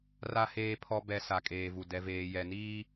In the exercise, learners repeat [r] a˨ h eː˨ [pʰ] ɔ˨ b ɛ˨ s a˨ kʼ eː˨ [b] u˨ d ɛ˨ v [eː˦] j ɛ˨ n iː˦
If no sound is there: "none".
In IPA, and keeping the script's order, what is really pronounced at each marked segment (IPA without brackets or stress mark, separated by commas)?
r, pʰ, v, eː˨